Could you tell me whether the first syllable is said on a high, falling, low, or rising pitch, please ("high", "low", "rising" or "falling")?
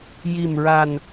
low